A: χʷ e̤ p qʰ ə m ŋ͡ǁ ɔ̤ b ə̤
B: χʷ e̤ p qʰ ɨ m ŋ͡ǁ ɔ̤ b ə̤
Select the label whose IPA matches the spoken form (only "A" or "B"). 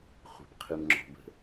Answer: B